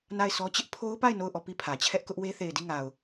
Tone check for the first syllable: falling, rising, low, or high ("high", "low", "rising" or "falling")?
falling